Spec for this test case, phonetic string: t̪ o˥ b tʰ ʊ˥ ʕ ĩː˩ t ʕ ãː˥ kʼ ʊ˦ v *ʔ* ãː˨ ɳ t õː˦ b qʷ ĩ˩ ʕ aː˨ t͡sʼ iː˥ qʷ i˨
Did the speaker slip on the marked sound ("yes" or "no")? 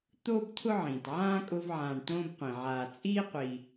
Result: yes